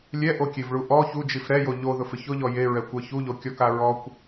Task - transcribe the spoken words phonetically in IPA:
lʲ ɛ ʔ o kʲ e v ɭ u ʔ ɔ ç u d͡ʒ i f ɾ ɛ j o ʎ o ð ʊ f ɪ ç ʊ ʎ ɔ j e ɹ ɛ kʷ ɛ ç u ʎ o kʲ ɔ k a ɹ ɔ kʷ

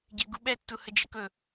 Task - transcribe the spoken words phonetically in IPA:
ɟ ɛ ɡ u ɓ ɛ tː u h ə d͡ʒ ə k ɵ

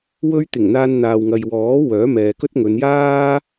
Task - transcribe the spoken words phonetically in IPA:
w ɵ˧ ɥ t̪ ɪ˨˩ ŋ n̪ aː˧ n n̪ aː˨ w ŋ ɐ˨ j w ɔː˨˥ w œː˨˥ m ɛː˨ k ɵ˥ t̚ ŋ ɵ˨˧ n j aː˥

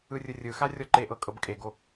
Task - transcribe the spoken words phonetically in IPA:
ɯ rʲ ɯ rʲ ɯ x a rʲ ɔ ǃ e ʔ ɤ kʼ ɤ b kʼ e ɡ o

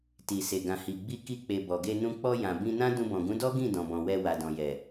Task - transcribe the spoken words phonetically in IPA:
t i˨ s e˨ ɡ ã˨ h i˨ ɡ͡b i˧ k i˧ k͡p e˨ b ɔ˨ ɡ e˧ n ũ˧ k͡p ɔ˧ j ã˨ b ĩ˧ n ã˦ d ũ˧ b ɔ̃˨ ɡ ũ˨˦ d ɔ˦ ɡ ĩ˦˨ d ɔ̃˨ b ɔ̃˨ w ɛ˧ w a˨ d ɔ̃˨ j ɛ˨

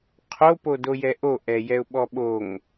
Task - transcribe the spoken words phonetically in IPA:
qʰ o p o d o j ɛ ʔ o ʔ ɛ j ɛ ʊ̯ ɓ ɔ ɓ o ŋ

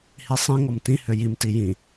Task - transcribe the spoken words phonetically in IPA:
h i sˤ ĩ ŋ ɔ m t ĩ h ø j i m t i j ĩ

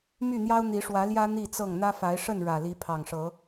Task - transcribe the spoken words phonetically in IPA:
m y˥˨ n̪ j ɑ˦ ʊ̯ n̪ i˨˦ ʂ w ä˨˦ l j ä˦ n̪ i˥˨ t͡s ɤ˥˨ ŋ n̪ ä˦ f a˨˦ ɪ̯ ʂ ə˥˨ n ɻ ä˨˩ l i˨˦ pʰ ɑ˨˩ ŋ ʂ ɤ˨˦

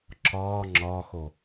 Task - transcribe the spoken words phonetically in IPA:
ǁ ɒː ŋ͡ǁ ɒː x o

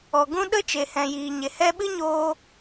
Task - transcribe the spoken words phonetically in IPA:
ɔ˨ ɡ ũ˦ ɗ ə˦ t͡ʃ e˨ h ɛ̃˨ j iː˨ ɲ e˨ h ɛ˧ ɓ ɨ˦ ɲ oː˧

